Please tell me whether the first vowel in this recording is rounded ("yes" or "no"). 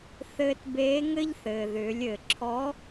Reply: no